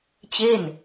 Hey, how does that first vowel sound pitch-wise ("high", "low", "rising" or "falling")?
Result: falling